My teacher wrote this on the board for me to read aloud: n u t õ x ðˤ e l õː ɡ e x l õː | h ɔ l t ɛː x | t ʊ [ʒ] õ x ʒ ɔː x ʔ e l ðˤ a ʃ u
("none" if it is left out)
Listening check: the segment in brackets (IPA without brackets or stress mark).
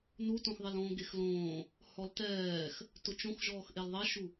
t͡ʃ